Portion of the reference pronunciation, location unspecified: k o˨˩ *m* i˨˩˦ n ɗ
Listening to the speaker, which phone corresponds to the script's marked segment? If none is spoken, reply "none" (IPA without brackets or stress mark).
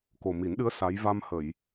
m